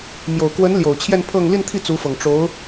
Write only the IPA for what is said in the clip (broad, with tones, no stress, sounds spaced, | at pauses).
m j o˨˩ ʊ̯ k w ə˧˥ n l j o˨˩ ʊ̯ t͡ɕʰ j ɛ˥˧ n pʰ ɤ˥˧ ŋ l i˥˧ n t̪ʰ i˥˩ t͡s u˧˥ f ɤ˨˩ ŋ ʈ͡ʂ o˧˥ ʊ̯